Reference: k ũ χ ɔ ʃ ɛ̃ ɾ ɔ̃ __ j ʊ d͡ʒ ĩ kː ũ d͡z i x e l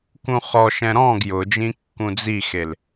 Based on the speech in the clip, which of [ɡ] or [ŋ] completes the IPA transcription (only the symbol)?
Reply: ɡ